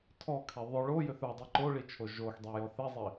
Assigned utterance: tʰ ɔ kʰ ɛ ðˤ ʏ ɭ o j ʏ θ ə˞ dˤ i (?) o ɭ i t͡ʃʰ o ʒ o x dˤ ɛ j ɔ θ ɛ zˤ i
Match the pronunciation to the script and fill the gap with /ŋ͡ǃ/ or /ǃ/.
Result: ǃ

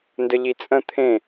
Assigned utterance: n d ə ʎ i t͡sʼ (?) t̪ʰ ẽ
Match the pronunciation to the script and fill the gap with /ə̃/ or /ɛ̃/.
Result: ə̃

